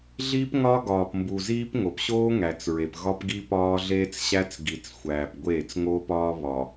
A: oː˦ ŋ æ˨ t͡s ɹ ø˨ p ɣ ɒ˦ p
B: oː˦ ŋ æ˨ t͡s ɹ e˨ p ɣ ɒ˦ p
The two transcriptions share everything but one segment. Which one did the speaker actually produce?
B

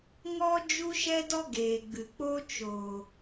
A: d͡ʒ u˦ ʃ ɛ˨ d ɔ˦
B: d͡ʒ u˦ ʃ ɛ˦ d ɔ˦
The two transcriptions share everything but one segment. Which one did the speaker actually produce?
B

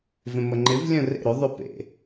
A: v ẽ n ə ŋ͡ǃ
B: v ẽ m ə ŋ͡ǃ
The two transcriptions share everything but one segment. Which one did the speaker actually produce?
B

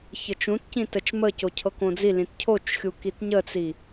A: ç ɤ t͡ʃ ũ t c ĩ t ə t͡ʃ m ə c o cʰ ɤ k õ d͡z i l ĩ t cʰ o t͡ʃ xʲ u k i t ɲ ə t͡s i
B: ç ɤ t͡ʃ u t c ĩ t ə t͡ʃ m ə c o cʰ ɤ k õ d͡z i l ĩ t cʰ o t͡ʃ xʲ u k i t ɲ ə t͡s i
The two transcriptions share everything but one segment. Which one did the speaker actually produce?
A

